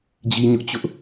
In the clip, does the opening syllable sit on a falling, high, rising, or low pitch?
high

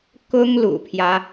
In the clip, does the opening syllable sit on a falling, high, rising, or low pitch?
high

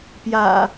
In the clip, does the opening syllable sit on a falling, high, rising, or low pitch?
low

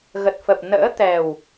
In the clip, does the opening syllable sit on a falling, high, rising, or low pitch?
low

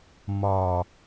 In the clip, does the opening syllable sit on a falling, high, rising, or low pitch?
low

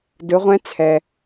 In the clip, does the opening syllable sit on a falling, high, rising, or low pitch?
rising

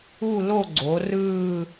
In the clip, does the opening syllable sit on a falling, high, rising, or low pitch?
falling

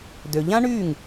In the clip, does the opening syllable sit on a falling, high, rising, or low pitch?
low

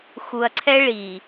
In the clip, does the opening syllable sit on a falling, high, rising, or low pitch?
low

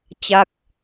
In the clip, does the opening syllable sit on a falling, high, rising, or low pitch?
falling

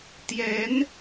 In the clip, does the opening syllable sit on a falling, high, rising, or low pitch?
rising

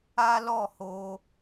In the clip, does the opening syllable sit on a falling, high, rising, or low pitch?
high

